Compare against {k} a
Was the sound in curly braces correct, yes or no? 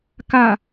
yes